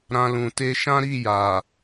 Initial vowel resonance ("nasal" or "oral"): nasal